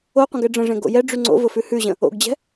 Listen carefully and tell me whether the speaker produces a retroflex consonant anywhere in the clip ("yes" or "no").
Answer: yes